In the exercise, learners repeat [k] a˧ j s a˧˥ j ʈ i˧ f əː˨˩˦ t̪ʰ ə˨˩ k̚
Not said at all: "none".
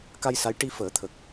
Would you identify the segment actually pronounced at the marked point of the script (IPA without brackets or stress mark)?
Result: k